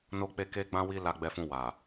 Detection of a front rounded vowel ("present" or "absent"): absent